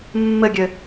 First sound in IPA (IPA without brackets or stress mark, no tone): mː